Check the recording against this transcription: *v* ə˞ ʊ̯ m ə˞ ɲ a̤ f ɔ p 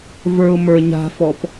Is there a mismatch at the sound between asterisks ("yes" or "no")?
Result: no